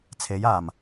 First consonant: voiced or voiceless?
voiceless